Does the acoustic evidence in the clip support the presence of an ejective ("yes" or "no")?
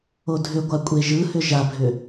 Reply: yes